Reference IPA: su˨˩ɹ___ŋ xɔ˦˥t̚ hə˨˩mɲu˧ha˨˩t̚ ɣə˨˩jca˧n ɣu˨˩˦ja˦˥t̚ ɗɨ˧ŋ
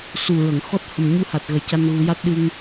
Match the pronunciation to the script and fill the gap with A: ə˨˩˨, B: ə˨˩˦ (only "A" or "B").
A